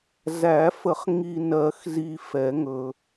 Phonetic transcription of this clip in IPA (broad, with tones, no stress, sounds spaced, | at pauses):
z æ˨˩˦ f ə˨˩˦ χ ŋ i˨ n ɜ˨˩˦ x z i˨ f ɛ˨˩˦ ŋ ɵ˨